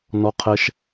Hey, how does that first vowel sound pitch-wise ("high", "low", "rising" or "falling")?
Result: high